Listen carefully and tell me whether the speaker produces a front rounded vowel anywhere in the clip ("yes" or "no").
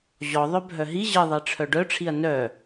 yes